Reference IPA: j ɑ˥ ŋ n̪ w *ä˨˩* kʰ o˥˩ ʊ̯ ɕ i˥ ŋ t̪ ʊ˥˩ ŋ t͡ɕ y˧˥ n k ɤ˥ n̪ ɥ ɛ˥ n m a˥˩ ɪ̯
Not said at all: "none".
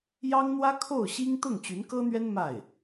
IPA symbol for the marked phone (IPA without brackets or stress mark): ä˥